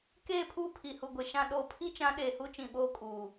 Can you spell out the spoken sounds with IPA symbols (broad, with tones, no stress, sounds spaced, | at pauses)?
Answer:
k eː˦˨ pʰ uː˦ pʰ i˨ h u˨ ɡʷ e˨ ʃ ã˨ ɗ oː˨ pʰ i˦ t͡ʃ ã˨˦ ɗ eː˨ h u˦ t͡ʃ ĩ˨ ɓ oː˦ kʼ uː˨